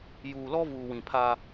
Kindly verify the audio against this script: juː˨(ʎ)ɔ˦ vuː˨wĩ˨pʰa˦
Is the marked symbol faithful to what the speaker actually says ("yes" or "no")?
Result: no